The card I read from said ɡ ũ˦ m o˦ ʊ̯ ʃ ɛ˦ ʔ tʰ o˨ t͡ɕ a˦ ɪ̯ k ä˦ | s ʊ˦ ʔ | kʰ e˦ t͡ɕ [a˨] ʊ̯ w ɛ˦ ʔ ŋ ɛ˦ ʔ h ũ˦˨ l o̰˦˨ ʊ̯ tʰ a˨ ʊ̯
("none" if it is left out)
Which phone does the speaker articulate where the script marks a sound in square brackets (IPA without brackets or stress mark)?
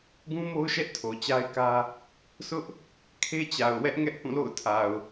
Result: a˨